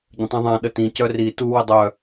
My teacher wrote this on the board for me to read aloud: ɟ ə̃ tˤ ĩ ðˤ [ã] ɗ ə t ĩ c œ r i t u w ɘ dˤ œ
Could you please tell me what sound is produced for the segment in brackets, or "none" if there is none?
ã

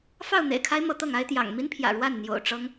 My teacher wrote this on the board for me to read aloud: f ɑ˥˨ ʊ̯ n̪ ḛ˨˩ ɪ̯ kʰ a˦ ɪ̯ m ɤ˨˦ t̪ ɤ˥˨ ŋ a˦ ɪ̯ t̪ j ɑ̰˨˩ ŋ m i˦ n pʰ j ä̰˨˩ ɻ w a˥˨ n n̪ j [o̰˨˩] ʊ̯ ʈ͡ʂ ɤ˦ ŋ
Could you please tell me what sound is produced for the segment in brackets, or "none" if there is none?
o̰˨˩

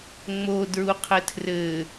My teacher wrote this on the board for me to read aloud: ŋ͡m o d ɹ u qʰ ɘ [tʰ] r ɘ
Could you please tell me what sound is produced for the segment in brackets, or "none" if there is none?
tʰ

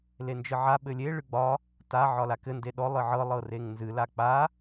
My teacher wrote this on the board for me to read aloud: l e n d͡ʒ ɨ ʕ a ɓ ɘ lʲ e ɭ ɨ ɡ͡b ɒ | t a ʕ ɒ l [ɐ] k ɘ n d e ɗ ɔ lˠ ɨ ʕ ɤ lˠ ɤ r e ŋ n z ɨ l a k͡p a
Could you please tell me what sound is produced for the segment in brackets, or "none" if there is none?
a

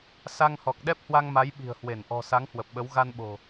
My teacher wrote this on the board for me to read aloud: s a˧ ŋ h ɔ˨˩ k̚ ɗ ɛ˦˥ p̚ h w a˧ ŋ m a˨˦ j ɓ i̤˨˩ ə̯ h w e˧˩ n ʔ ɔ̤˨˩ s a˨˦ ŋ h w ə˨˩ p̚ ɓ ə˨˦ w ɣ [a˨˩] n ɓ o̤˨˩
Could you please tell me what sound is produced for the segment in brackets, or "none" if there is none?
a˧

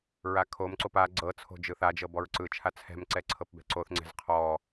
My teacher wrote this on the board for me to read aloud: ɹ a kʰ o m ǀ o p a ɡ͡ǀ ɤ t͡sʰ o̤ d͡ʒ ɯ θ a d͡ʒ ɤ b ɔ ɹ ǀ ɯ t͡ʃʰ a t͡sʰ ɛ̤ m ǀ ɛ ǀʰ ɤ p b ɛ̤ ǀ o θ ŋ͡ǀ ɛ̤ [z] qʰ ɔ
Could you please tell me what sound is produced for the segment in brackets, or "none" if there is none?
z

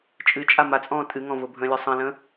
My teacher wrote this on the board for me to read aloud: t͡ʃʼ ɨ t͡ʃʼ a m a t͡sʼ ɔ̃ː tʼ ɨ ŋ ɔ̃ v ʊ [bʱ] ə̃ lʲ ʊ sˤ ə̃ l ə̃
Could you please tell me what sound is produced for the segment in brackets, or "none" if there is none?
bʱ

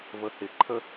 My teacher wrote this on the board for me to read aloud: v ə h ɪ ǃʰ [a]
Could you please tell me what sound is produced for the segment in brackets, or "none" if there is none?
ə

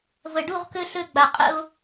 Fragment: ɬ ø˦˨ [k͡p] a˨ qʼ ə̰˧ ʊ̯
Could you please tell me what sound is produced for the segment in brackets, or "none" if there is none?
ɡ͡b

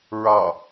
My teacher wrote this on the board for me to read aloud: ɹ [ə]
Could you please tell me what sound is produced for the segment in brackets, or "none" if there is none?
ɑ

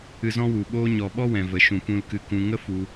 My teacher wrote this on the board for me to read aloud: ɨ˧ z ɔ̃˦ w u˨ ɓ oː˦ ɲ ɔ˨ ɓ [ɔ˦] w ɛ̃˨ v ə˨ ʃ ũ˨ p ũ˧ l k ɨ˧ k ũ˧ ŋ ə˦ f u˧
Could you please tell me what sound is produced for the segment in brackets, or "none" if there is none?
ɔ˦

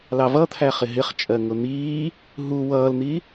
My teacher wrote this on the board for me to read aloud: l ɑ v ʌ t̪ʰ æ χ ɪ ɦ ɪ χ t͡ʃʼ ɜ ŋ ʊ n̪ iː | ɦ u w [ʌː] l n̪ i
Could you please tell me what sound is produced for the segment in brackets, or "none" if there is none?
ʌː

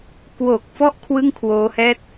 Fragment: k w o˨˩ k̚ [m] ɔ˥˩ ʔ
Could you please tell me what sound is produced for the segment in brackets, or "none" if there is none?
f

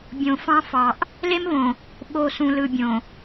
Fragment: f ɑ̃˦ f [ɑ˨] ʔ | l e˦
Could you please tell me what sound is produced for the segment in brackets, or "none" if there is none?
ɑ˨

